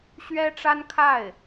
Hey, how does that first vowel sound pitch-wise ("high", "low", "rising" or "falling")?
high